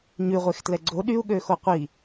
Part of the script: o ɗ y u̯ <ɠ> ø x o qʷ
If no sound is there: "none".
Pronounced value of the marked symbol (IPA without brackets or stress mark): ɠ